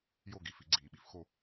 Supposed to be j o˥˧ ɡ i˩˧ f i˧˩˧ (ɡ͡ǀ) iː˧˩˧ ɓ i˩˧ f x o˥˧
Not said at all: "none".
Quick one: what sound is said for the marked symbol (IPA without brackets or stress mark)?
ɡ͡ǀ